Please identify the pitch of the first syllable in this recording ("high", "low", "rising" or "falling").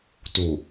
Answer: low